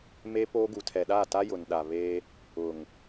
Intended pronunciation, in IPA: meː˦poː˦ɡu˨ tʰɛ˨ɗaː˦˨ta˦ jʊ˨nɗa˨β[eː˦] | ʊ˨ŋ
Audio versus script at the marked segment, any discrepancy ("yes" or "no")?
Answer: no